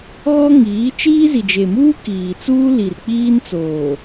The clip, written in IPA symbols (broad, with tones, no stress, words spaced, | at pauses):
ɣɔ˦ŋiː˨˦ t͡ʃiː˦zi˨d͡ʒe˨muː˦ kiː˨t͡suː˦ li˨r k͡piː˦nt͡soː˨